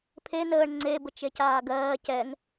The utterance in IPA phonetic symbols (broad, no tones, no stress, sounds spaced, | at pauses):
pʰ e n əː ɳ ŋ͡ǀ e b ə t͡ʃ e c aː ɡ ɜː c ɛ ŋ